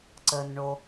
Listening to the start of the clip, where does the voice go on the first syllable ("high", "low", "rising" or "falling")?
low